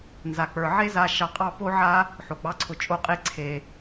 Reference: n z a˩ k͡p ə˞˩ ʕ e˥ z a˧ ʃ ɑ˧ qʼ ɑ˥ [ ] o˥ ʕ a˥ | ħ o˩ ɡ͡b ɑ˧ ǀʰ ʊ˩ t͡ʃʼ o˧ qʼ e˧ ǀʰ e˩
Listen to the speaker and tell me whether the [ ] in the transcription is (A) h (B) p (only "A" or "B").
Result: B